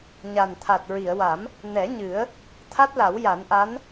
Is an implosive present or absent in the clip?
absent